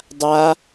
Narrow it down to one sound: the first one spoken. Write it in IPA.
dˤ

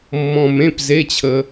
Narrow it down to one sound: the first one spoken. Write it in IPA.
mː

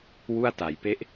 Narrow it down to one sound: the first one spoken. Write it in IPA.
w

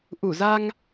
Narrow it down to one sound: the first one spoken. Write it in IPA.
ʔ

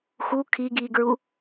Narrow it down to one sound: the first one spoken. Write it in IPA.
x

